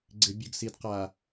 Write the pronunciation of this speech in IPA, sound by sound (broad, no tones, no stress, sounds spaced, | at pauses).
ɡ͡ǀ ɪ bʲ ʊ ɡ s i d q a